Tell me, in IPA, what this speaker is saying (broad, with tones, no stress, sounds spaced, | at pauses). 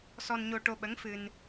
s ɔ˧ n ɲ o˧ ʈ o˧ ɓ ə˧˥ ŋ f ɨ˧ n